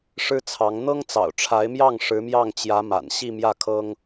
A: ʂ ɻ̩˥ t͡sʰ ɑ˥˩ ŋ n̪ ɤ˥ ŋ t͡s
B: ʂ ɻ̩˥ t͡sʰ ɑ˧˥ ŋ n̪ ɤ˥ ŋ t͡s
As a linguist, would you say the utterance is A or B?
B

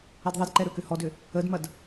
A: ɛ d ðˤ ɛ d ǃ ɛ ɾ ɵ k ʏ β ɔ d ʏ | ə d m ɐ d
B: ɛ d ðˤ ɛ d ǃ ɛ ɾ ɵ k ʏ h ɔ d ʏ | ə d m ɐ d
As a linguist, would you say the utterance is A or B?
B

